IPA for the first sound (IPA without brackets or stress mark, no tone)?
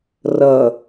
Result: r